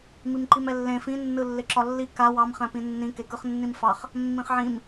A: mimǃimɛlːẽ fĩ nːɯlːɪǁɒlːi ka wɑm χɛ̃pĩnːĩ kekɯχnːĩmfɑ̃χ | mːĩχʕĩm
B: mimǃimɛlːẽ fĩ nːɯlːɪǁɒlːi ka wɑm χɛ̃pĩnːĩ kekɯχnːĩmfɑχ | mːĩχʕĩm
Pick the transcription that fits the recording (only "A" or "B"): B